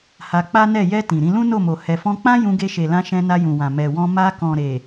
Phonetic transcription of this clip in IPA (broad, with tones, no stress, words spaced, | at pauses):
ha˧k͡pa˦nɛ˦˨ jɛ˧ tĩ˨ɾĩ˧ lũ˦no˦˨mo˨ hɛ˨fɔ̃˧k͡pã˦ jũ˧ɡe˧ʃe˨lã˧ ʃɛ̃˧ na˧jũ˨wã˨ mɛ˨wɔ̃˧ ma˧kɔ̃˨ ɾe˨